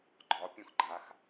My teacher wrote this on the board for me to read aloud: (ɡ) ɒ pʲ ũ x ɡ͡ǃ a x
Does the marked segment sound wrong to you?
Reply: yes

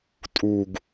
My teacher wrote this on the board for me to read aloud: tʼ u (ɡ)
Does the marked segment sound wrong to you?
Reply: no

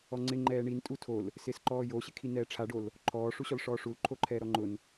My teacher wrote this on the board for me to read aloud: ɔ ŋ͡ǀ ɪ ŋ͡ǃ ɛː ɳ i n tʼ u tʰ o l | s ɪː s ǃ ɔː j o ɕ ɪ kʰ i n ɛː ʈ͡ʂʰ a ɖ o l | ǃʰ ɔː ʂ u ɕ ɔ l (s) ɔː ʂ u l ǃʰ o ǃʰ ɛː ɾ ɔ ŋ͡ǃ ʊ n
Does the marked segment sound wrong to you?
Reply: yes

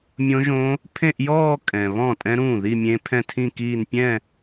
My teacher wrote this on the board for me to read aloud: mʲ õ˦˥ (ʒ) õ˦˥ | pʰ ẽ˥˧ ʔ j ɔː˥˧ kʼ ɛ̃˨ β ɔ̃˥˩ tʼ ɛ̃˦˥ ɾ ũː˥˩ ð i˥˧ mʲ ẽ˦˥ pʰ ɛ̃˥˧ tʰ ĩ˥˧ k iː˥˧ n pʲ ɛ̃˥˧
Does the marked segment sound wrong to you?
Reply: no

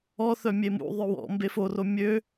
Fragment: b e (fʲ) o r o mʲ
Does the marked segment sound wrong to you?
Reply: yes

